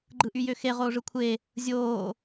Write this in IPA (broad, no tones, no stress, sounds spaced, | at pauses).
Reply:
ɡ͡ǃ ɯ ʔ y j ø x e ʁ oː ʐ ɯ kʷʰ e | zʲ oː